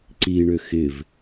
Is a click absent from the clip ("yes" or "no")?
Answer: no